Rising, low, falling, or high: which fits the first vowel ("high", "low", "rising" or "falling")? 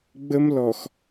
high